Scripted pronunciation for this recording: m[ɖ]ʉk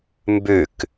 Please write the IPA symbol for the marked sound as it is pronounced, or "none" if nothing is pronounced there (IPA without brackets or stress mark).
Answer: b